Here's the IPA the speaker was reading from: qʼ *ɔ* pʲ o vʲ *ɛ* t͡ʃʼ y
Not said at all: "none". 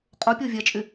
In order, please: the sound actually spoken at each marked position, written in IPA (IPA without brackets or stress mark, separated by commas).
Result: o, ɛ